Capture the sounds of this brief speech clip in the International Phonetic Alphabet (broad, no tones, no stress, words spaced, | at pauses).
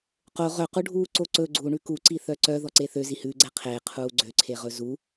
qo ʁœquɖʱuː ǀoǀɵ ɡ͡ǀuɳʉ kuǀi θœǀœ ðɔǀeθø zihʉɡ͡ǀɛ qʰeqʰuː ɡ͡ǀøǀʰeʁɵ zu